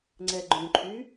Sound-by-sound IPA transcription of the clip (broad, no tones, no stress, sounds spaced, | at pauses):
ŋ͡ǀ ɛ ɡ͡ǃ ũ ǃʰ y